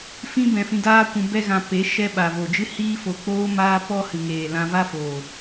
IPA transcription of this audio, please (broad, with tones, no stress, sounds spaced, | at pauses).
f ĩ˦ b ɛ̃˧ f ĩ˧ d aː˦ kʷ ũ˧ b ɛ˦ ɣ ã˧ p e˨˦ ʃ ɛ˧ ɓ a˨ v o˨ d͡ʒ ɨ˦ h iː˦ f o˧ k͡p oː˦ m aː˦ p ɔ˦ h ɨ˨ ŋ eː˨ l ã˧ v a˦ f oː˨